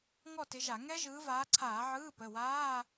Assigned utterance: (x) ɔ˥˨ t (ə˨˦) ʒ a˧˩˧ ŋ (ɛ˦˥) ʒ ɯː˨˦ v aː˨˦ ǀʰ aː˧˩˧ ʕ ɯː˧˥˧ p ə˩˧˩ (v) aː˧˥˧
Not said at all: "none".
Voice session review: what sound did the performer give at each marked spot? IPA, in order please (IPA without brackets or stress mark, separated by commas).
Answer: ŋ, ɪ˨˦, ɛ˦˥, w